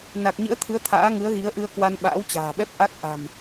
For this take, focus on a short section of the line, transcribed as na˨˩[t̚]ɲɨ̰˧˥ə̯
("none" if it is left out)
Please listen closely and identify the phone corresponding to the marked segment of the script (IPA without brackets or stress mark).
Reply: k̚